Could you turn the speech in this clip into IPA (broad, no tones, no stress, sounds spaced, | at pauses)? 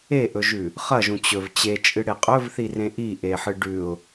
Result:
e ʔ ɵ ʒ ʉ | χ ɐ ʒ ũ t͡ɕ ɵ v t͡ɕ e t͡ʃʼ ɨ ɽ e qʼ ɵ v θ i r ẽ ʔ i ʔ e ħ ɨ ɖ ʉ ʊ̯